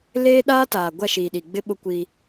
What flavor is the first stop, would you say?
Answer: implosive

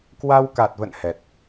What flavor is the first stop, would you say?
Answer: plain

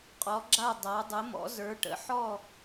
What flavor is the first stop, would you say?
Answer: ejective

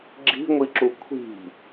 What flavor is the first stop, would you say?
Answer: click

